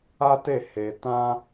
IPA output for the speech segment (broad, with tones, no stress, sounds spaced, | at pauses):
a˦ t e˦˨ h e˧ t ã˦